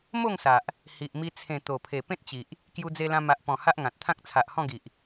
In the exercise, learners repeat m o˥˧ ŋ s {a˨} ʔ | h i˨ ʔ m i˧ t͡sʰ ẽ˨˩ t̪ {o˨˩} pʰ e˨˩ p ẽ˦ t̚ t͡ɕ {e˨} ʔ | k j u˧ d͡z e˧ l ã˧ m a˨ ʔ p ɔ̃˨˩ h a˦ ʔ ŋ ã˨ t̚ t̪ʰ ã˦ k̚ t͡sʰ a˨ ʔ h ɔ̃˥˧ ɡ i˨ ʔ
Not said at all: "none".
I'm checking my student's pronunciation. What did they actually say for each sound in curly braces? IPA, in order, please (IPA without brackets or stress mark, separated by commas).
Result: a˨, o˨˩, i˨